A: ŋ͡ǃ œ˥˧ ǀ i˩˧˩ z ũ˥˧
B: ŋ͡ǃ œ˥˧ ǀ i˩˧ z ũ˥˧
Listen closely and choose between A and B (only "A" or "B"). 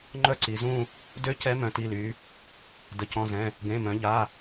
B